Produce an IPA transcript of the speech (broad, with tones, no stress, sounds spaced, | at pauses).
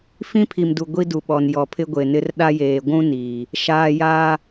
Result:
f ĩ˦ pʰ i˨ m d u˨ ɡʷ i˦ d u˨ ɓ ɔ˨ n j ɔ˨ pʰ ɪ˦ ɡʷ e˨ n ɪ˦ r ɗ a˦ j eː˨ ɡʷ ũ˦ n iː˨ | ʃ aː˨ j aː˦